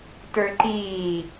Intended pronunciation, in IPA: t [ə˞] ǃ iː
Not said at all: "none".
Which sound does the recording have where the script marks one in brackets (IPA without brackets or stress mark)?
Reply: ə˞